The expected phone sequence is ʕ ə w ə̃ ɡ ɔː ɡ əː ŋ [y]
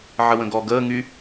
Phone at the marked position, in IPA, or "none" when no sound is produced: y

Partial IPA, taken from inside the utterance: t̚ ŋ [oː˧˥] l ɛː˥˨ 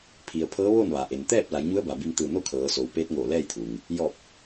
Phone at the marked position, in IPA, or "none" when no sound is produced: oː˧˩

